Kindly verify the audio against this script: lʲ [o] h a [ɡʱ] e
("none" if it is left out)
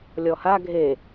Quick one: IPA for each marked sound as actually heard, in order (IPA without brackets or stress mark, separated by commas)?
ɔ, ɡʱ